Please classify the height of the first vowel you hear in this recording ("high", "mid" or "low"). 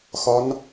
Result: low